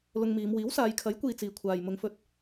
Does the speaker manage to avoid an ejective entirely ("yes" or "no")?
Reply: yes